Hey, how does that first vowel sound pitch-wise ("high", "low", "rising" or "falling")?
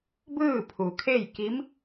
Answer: falling